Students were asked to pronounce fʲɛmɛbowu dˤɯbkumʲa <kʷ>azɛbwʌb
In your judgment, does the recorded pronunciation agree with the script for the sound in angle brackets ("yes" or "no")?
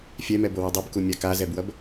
no